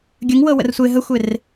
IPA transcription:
ɡʲəŋwɤwə̰r sʷe ɦəxʷer

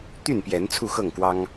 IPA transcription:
t̪y˥˨npjɛ˨˦n t͡sʰu˥˨xɤ˥˨ŋkwɑ˦ŋ

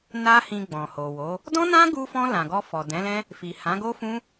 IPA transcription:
na˦hĩ˧ ɡ͡bɔ̃˨ho˨wo˨˦ | dɔ̃˦nã˦ɡu˧fɔ̃˧ lã˨ɡɔ˧ fɔ˨dɛ̃˨˦lɛ̃˦ | fi˨hã˨˦ɡo˦fũ˦

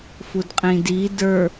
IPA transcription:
fudqʼĩdi də˞

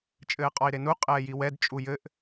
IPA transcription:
t͡ʃʼɘːqʼɔi̯ɾenu qʼɛːjiwɛd t͡ʃʼujɘʔ

